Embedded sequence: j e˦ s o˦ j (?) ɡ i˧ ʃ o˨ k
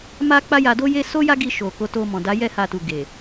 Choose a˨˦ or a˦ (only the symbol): a˦